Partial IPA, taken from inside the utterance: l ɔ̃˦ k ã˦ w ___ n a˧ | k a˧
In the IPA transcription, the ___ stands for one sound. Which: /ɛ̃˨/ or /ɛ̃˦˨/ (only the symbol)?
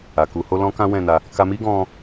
ɛ̃˦˨